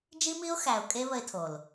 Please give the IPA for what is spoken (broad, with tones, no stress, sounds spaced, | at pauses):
d͡ʒ i˦ m i˦ ʊ̯ x æ˨ ʊ̯ kʼ e˦ β ə˦ ɪ̯ tʰ o˨ l